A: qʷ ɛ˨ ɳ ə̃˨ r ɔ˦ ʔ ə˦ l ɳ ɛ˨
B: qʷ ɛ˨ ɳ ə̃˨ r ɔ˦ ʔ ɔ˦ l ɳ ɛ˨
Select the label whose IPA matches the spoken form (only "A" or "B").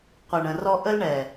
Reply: A